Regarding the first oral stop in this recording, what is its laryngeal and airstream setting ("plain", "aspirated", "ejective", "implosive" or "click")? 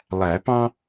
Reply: plain